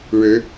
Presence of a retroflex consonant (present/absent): present